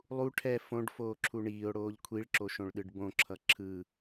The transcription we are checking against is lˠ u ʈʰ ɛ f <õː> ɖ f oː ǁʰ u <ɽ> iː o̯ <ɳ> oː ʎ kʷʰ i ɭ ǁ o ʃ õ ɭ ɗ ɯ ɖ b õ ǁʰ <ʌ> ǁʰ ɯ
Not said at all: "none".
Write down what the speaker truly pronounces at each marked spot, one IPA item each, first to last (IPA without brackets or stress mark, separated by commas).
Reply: õ, ɳ, ɽ, ʌ